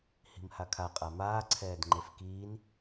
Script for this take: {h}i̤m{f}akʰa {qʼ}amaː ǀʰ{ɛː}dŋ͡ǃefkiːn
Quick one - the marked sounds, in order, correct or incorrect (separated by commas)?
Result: correct, incorrect, correct, correct